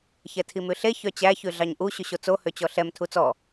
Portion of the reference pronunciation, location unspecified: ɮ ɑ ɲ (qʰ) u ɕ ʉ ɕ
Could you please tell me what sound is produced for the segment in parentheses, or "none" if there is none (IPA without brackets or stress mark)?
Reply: ʔ